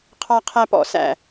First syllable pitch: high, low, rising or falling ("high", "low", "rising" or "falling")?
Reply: high